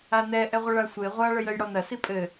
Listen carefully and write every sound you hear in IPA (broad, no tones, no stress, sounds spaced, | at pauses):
a n ɛ ʔ ɛ ʁʷ ɐ ɭ a sʷ e ʁʷ a ɭ ɘ j ɘ j ɽ ɔ n ɐ s i pʼ ɘ